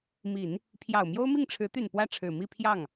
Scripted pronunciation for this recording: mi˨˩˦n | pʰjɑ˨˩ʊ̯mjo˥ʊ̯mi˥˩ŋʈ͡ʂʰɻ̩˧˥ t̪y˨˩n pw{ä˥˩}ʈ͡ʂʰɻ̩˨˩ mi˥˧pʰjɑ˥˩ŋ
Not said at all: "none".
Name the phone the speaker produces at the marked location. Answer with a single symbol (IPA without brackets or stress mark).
ä˥˩